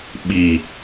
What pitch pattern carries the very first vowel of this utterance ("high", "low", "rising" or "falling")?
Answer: low